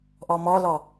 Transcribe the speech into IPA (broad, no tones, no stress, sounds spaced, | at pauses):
ʔ ɔ m ɔ l ɔ